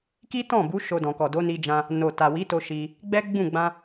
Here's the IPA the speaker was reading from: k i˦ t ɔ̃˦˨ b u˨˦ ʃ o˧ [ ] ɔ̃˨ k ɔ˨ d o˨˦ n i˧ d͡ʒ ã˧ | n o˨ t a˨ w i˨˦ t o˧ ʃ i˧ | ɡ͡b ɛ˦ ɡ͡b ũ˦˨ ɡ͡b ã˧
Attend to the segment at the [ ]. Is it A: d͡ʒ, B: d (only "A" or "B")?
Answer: B